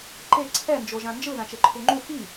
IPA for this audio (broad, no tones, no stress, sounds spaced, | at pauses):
ǃ e ǀʰ ɛ n d͡ʒ o ʒ ã n d͡ʒ ɯ ð ã t͡ʃ e ǃʰ u ŋ͡ǃ u f i